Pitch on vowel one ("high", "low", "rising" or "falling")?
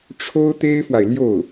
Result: high